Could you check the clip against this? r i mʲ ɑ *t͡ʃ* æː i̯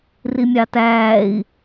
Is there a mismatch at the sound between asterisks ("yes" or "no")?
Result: yes